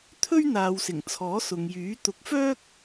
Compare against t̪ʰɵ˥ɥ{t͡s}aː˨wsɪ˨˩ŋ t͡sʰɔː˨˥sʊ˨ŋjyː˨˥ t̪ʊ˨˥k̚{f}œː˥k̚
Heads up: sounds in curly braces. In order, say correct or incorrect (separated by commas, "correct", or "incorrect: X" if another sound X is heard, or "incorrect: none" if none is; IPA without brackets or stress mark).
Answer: incorrect: n̪, correct